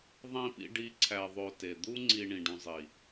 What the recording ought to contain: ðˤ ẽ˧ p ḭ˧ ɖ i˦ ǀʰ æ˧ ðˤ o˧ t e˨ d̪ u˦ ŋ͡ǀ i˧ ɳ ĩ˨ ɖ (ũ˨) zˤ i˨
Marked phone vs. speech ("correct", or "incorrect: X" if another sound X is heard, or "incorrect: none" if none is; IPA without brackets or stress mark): correct